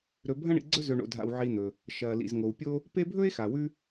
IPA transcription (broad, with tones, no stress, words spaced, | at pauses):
ɾɵ˨ bʱɐ̃˦ɳḭ˨ɡ͡ǀɵ˦ zɵ˨ɳo̰˨dʱa̰˨w ʕi˨n̪ɵ˩ | ʃɐː˩lḭ˩zŋo˩wpʲo˦ | pe˦bʱɵ˥e̯xa˩ wʉ˦